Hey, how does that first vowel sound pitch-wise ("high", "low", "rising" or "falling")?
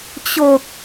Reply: low